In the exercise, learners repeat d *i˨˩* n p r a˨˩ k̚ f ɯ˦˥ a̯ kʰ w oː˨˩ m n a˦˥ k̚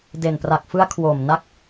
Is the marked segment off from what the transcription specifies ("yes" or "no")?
yes